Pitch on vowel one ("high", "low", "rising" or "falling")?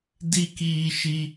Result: high